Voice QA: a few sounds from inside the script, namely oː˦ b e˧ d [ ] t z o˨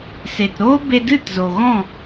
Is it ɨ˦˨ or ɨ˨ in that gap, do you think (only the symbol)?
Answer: ɨ˦˨